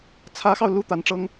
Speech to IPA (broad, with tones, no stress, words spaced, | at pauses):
t͡sʰä˧˥xɑ˧ʊ̯ lu˥˩t̪a˧˥nʈ͡ʂɤ˥ŋ